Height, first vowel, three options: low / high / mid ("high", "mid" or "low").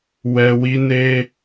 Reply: mid